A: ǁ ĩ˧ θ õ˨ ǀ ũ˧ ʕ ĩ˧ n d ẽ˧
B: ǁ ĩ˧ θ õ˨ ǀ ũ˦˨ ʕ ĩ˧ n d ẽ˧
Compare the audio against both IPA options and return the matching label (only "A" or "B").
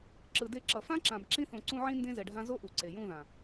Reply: A